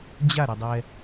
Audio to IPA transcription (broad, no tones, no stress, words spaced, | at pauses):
d͡ʑaɾʌdˤɛ